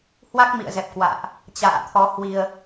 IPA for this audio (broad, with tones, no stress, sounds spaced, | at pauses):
h w a˦˥ k̚ m ḭ˧˨ ə̯ z ɛ˨˩ p̚ k w a̰ː˧˨ ʔ | t͡ɕ a̰ː˧˨ t̪ʰ ɔ˨˦ h w i˧ ə̯